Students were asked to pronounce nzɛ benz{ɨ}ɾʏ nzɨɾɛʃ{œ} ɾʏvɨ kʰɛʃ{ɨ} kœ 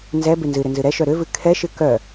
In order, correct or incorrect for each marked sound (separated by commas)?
correct, correct, correct